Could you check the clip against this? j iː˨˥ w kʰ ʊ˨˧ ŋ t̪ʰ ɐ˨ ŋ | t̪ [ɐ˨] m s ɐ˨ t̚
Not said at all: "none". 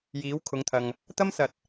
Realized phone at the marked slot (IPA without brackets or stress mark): ɐ˥